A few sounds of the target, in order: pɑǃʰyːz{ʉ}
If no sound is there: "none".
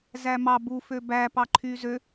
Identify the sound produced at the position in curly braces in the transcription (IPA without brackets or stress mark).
ø